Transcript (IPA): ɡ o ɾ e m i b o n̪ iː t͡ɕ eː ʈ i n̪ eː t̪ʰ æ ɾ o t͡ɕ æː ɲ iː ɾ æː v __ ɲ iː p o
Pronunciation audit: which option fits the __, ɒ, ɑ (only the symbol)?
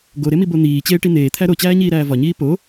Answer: ɒ